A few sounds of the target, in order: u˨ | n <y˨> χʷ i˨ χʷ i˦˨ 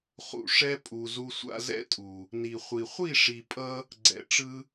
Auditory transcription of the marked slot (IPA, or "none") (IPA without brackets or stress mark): i˨